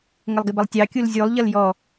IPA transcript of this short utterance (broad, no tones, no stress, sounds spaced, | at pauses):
ŋ ə lˠ ɡ ɪ b ʌ lˠ tʲ ɑ kʲ u l zʲ u lˠ ʎ ʌ l j ɔ